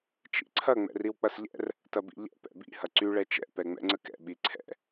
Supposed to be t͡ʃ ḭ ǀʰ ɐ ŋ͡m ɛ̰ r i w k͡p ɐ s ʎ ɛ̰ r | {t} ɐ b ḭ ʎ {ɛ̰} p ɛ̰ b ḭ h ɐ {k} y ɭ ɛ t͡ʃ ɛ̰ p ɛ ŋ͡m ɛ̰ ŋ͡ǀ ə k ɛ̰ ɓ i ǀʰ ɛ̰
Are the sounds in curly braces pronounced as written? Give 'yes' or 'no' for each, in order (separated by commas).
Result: yes, yes, no